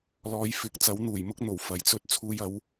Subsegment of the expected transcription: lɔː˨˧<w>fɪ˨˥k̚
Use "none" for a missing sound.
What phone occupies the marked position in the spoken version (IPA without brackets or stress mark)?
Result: j